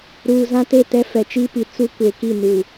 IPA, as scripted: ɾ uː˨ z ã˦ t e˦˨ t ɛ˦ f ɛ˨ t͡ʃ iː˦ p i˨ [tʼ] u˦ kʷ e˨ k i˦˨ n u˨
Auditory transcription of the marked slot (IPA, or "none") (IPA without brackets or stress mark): t͡s